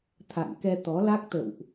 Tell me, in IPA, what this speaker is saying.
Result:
t̪ʰ a̰˧˨ ŋ k ɛ˧ t̪ ɔ˨˦ l a˦˥ k̚ t̪ ə̰˧˨ w ʔ

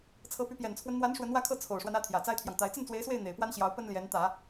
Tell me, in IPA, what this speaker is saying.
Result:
t͡sʰ ɤ˧˥ p y˧˥ p j ɛ˨˩ n t͡sʰ w ə˦ n n̪ w a˧˥ n ʂ w ə˧˥ n w ä˥˧ kʰ ɤ˥˩ t͡sʰ o˨˩ ʊ̯ ʂ w a˦ n ä˥˩ t̪ʰ j ä˨˩ t͡s a˥ ɪ̯ t̪ʰ j ɑ˨ ŋ t̪ a˧˥ ɪ̯ t͡s ə˥˩ n t͡s w e˧˥ ɪ̯ s w e˥˩ ɪ̯ n̪ e˨˩ ɪ̯ p w a˥ n ɕ j ɑ˧˥ ʊ̯ p ə˥ n l j ɛ˧˥ n t̪ ä˨˩˦

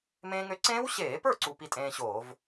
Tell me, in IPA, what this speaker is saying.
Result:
m ẽː˧ ŋ ø˧ ǀ ẽː˦˥ w ɕ eː˧˩˧ p ə˞˥˩ ǀ u˧ p i˧ tʼ ẽː˧ ɕ oː˧˩˧ v

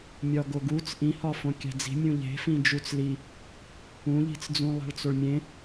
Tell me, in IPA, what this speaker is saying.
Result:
mʲ ɒ ɡ o ɡ u t͡s ʔ ĩ h ɒ f õ kʲ æ̤ d͡z i̤ mʲ ũ ʎ e̤ f ĩ d͡ʒ u t͡s l i | ũ ʎ i̤ t͡s d͡z ũ lˠ æ̤ ɭ t͡s o ɭ mʲ ẽ

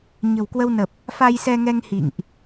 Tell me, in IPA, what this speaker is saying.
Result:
ɲ ə̤˨˩ w k w ə˧ w n ə˨˩ p̚ | f a˧ j s ɛ˧ ŋ ɛ˧ ŋ h ḭ˧˨ ŋ ʔ

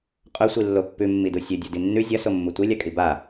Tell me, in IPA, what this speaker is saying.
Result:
qʼ ɵ sʷ i lː o pː ʉ mː i d u sʲ ɵ dʲ o d i nː ʉ zʲ ɐ s o mː u tʷ i lʲ a kʼ i b a

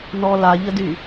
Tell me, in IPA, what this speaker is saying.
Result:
n ɔ l a ʎ ə d y

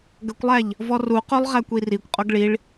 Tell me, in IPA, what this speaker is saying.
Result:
ɡ ə kʷ lˠ æ ʎ | v ɔ r u q o lˠ ʁ æ kʷ i r i kʷ qʼ o ɡ ɭ i ɭ

